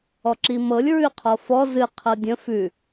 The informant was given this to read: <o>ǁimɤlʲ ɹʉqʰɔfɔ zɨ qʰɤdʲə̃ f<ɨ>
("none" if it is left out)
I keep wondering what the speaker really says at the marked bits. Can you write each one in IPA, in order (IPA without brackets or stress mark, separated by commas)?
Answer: ɔ, ʉ